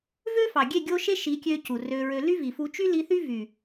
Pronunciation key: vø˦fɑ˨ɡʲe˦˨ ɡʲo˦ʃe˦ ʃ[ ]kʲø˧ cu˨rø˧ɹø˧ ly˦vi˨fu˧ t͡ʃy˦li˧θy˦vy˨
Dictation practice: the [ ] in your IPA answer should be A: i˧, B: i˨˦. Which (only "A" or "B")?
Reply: B